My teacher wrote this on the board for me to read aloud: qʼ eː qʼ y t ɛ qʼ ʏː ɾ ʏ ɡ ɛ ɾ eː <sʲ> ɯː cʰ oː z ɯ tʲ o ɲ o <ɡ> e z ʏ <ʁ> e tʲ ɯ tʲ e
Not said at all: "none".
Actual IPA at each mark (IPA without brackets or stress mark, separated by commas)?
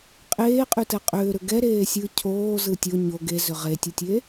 sʲ, ɡ, ʁ